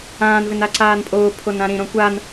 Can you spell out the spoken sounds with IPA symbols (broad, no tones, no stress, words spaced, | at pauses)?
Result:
ãːnvɪn aǀaːnpʼoː pʰonãɾĩ ɾõkʷan